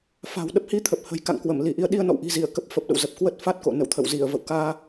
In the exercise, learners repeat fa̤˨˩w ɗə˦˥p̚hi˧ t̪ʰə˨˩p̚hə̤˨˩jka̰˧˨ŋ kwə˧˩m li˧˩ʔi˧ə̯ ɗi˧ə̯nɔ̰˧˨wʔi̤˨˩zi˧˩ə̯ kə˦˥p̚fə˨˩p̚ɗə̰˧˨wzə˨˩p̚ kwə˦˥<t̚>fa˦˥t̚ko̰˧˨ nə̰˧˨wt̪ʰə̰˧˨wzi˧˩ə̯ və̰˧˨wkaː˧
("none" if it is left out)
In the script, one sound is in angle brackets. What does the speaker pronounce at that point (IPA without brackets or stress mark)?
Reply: t̚